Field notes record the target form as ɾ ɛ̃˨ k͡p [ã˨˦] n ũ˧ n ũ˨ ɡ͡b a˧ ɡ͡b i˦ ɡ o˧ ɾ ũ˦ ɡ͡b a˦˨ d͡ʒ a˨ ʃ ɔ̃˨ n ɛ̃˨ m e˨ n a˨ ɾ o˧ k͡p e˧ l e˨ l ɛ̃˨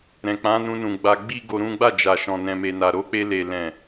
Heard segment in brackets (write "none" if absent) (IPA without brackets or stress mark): ã˨˦